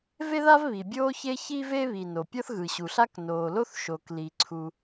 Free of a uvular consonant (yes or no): yes